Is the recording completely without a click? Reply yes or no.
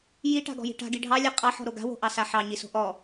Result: yes